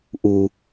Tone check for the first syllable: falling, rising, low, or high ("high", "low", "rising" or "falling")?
low